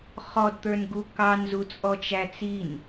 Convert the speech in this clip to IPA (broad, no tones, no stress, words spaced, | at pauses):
χɔdt̪ə˞nɡu kɑnzut͡sʼɔ t͡ʃæt͡sin